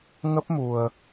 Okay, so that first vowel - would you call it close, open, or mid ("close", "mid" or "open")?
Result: mid